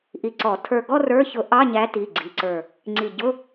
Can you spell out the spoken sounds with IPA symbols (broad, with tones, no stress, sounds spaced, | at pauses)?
ʔ i˧˩ ǀ ɔ˨˩˦ tʰ ə˞˧˩ ɡ ɔ˥˧ r ə˞˧˥˧ ç ʊ˨˩˦ ʔ ɑ˧˥˧ ɲ æ˨˥ t i˩˧˩ ɡ͡ǀ i˩˧˩ ǀ ə˞˧˩ | ŋ͡ǀ i˧˩ ɟ ʊ˧˥˧